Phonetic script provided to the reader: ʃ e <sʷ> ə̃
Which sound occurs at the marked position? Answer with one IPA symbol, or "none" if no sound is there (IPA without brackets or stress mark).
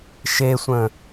sʷ